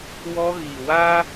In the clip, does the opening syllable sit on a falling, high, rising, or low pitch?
high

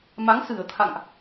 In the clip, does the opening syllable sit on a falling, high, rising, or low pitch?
rising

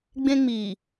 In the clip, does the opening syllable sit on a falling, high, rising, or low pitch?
high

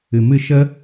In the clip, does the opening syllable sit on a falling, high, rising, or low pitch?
low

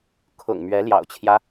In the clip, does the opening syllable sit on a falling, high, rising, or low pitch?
low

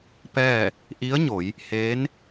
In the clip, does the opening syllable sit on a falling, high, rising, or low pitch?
falling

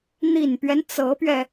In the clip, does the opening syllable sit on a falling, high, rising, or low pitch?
low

